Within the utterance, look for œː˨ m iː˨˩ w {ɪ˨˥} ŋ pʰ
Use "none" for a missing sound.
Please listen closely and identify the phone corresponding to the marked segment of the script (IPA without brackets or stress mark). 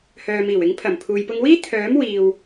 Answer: ɪ˨˥